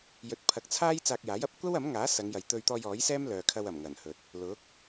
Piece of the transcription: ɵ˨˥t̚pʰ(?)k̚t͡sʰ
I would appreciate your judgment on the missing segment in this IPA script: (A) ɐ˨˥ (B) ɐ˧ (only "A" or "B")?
A